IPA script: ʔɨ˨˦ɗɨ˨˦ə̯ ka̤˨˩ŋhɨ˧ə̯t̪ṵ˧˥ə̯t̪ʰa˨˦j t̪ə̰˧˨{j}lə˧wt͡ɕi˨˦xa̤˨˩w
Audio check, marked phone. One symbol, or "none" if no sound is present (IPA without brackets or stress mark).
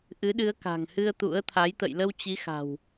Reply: j